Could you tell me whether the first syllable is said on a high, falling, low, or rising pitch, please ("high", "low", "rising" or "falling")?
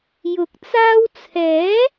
rising